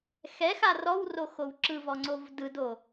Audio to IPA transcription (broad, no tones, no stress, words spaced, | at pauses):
xɛxa rɔwroxow ǁɯvɔŋ͡ǀov dɯdo